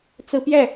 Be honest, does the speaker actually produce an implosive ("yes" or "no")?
no